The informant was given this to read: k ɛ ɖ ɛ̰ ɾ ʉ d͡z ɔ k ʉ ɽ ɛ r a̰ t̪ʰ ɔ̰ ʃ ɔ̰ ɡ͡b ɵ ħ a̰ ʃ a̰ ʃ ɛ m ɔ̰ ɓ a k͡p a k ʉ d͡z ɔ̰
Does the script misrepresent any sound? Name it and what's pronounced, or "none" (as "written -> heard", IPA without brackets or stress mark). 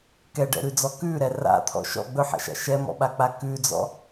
ɽ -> ɾ